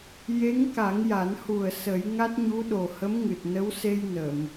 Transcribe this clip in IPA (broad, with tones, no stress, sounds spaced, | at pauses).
j e˧˥ ŋ k a˨˩˦ ŋ j a˨˩˦ n h u˨˩ ə̯ s ə˨˩˦ j ŋ a˦˥ t̚ ɲ u˧˥ ɗ o˨˩ h ə˧˥ m ŋ ɨ˨˩ t̚ n ə˧˥ w s e˧ j n ə˨˩˨ m